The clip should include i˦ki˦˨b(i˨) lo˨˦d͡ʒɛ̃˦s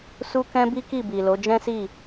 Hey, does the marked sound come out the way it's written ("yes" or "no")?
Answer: yes